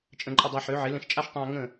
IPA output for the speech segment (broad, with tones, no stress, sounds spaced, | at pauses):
t͡ʃʼ ə̃˧ ǃʼ ə˧ dˤ a˧ ħ ø˨˦ ʕ ɪ˨˦ l ə̃˧ ʃ t͡ʃʼ a˦ ʃ tˤ ɛ̃˧ ɐ̯ ŋ ə̃˦˨